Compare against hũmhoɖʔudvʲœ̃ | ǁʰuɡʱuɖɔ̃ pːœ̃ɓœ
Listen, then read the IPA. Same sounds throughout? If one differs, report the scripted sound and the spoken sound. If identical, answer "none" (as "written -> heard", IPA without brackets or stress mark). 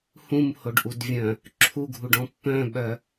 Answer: none